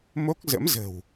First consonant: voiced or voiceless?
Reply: voiced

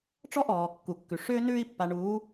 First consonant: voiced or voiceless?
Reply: voiceless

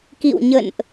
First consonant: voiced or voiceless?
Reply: voiceless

